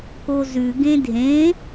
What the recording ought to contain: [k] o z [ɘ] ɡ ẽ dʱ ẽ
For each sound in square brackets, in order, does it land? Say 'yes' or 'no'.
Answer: yes, no

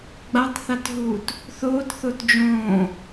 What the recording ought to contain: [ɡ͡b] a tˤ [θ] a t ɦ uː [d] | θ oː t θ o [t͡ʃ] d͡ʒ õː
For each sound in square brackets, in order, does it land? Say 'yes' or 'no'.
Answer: yes, yes, no, no

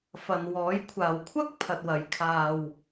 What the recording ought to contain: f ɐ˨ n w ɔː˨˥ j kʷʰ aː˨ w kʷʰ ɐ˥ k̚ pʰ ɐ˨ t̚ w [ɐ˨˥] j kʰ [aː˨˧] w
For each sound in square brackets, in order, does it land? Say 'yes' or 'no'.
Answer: yes, no

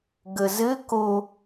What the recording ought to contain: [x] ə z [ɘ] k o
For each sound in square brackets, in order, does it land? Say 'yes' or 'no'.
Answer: no, yes

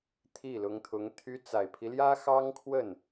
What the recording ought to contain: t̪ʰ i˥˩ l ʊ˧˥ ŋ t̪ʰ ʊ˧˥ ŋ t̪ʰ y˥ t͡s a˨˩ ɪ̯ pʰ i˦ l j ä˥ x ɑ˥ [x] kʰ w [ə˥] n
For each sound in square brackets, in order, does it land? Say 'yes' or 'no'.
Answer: no, no

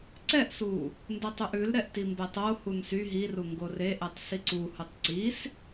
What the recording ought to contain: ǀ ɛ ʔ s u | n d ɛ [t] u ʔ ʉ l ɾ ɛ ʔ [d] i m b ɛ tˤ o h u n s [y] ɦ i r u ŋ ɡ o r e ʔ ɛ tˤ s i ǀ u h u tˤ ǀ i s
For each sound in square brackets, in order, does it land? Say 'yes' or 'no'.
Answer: no, no, yes

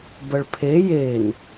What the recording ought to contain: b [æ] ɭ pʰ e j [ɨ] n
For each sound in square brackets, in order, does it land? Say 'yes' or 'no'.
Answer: no, no

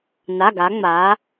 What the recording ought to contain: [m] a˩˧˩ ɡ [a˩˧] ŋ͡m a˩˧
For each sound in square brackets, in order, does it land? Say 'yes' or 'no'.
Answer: no, yes

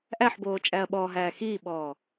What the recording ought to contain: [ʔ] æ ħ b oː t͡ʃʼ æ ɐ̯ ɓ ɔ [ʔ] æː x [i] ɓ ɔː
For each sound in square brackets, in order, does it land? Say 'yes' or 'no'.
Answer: yes, no, no

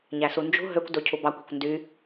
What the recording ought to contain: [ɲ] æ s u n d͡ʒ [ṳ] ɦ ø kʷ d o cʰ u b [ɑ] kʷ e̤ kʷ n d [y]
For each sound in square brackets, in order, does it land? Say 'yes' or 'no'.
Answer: yes, yes, yes, yes

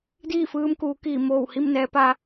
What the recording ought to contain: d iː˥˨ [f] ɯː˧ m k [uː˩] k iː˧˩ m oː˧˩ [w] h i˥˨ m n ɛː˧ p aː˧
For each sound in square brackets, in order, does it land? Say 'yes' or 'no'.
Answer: yes, no, yes

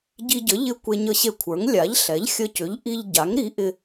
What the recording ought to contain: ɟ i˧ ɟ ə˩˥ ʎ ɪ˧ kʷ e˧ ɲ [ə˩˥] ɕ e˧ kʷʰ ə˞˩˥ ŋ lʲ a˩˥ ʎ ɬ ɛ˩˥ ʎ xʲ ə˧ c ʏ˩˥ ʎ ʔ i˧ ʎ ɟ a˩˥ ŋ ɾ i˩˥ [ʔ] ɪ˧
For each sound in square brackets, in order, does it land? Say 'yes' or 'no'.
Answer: no, yes

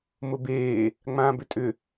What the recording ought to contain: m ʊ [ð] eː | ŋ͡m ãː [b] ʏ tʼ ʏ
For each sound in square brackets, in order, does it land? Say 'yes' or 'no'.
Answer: no, yes

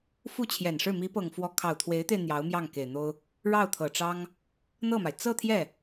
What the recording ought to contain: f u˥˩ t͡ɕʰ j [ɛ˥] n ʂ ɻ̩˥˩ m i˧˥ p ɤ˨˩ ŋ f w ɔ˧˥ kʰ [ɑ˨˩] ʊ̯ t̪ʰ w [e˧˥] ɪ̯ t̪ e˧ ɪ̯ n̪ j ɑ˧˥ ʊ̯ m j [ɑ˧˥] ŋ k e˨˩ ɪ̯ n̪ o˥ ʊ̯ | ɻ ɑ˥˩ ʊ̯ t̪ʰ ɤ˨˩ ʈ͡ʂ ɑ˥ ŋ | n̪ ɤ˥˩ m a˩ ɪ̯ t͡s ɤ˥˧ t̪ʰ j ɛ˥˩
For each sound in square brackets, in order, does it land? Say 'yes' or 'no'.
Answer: no, yes, yes, no

